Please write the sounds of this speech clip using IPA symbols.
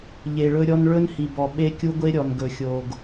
ʎ e˨ ɭ ɵ˦ ɾʲ ɔ˦ n ɭ ɵ˦ n h i˨ b ɔ˨ ɓ e˦ kʲ u˦ ɡʷ e˦ ɾʲ ɔ˨ n ɡ ɵ˨ xʲ o˨ ɡ

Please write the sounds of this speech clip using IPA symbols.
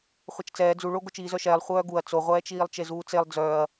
χʷ ɛ t͡ʃ t͡s ɛː d͡z u ɭ o ɡ o t͡ʃ iː z œ ʃ ɛː lˠ χʷ œː ɡ u ɐ̯ t͡s o ʁʷ ɛː t͡ʃ iː lˠ t͡ʃ e z uː t͡s e lˠ d͡z œː ɐ̯

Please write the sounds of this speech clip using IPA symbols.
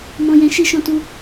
m ɔ̃˧ j ɛ̃˧ ʃ i˦ ʃ ɔ̃˦ t u˦

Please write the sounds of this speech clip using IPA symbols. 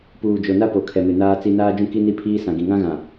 p uː˨ d͡ʒ o˨ n a˦ p o˨ kʰ ɛ˨ m ɪ˨ n aː˦ t͡s i˦ n aː˦ d͡ʒ ũ˦ k i˦ n i˦ pʰ iː˦ s ã˨ ɡ ĩ˨ ŋ ã˦ ɣ ã˨

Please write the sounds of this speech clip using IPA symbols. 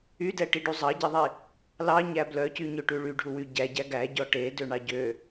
y d ɛ ʈ i ɖ u zˤ ɑ ɟ i ðˤ i | l ɑ ɲ æ b l œ c y ɲ ø ʈ ʉ ɭ y ɖʱ u w y ɟ æ ɟ æ ɡ æ ɟ ɔ ʈ e d ø ɳ ɑ ɟ ø

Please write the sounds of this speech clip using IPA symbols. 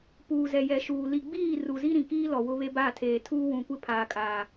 p uː˨ z ɛ˨ j ɛ˨ ʃ uː˨ l i˨ ɡ͡b iː˦˨ r u˨ z i˦ ɾ ĩ˨ k iː˦ l ɔ˨ w ʊ˦ β e˦ b a˦˨ tʰ eː˨ tʰ uː˦ w ũ˨ kʷ ɪ˦ pʰ aː˨ kʼ aː˨

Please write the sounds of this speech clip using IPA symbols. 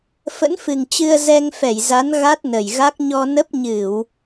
f ə̰˧˥ n f ɨ˨˩ ŋ t͡ɕ ɨ˧ ə̯ z ɛ˧ ŋ f ɛ˧˩ j z a˨˦ n ɣ a˦˥ t̚ n ə˨˩ j ɣ a˦˥ k̚ ɲ ɔ˧ n ə˦˥ p̚ ɲ ɨ˧˩˨ w

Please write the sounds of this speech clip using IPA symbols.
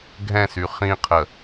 ɡʱ ɛ̃ s y χ ĩ qʰ ə

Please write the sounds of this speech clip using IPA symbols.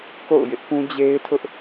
k o̰˦˨ ʊ̯ j ɪ˦ ʔ p ũ˦ d͡ʑ e˦ ɪ̯ tʰ ʊ˦ ʔ

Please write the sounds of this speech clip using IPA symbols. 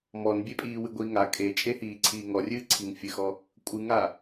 m ɔ n bʲ e pʼ iː w ɨ ɡʷ iː ŋ a kʼ e t͡ʃʼ e h iː ǀʰ iː ŋ ɔ rʲ ɨː ǀʰ i ŋ fʲ ɨ x ɔ | kʷʼ ɨ ŋ a

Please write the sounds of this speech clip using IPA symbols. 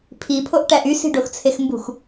pʰ i pʰ o ʔ ʈ æ ʔ y s i̤ ɖ o x t͡sʰ e x m b ṳ x

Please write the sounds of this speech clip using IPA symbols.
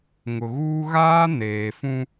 ŋ ʊ˨ ɣ uː˦ ɣ aː˦ n eː˨ f ũ˦

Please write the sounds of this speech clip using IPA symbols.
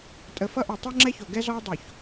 tʼ ə˨ f ʌ˦ ʔ o˨ tˤ o˦ ŋ͡ǁ ɛ˦ ç o˨ ɡ ɛ˦ z ɔ˦ ɐ̯ dˤ o˨ ç

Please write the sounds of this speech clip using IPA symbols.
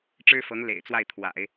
ʈ͡ʂ ɻ̩˥ f ɤ˧˥ ŋ l ḛ˨˩ ɪ̯ t͡s w a˥˩ ɪ̯ t̪ʰ w a̰˨˩˦ ɪ̯

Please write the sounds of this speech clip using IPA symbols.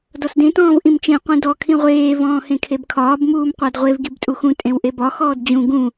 d ɔ s d ẽ t ɔ̃ː v ʔ ĩ m t͡ʃ ẽ qʷ ĩ d ɔ kʰ ĩ ʁʷ eː v ɔ̃ː h ẽ kʰ e b kʰ ɒː b m uː m qʷ æ d ʁʷ e v ɡ i b tʼ u x ũ tʼ ẽ w ʔ e b ɒ x ɔː d d͡ʑ ũ ɡ ũ

